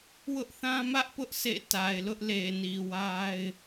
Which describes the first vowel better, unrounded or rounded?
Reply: rounded